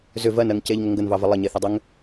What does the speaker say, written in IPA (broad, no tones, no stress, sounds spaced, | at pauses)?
z ʏ v ɜ n ɜ ŋ c e ʎ ŋ ə ŋ ɡ ə n v ɑ v ə lˠ ə ɲ e θ ə dˤ ʏ ŋ